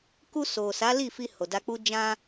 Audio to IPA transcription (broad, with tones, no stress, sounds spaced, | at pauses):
k u˧ s o˨ s a˨˦ l i˦˨ f i˧ h o˨ d a˧ k͡p u˦ d͡ʒ ã˧